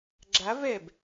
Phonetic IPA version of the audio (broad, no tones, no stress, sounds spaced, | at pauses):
ɡ͡ǁ a v ɛ b